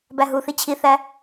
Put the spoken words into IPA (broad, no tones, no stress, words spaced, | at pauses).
bæɦuθi t͡ɕʰiθæ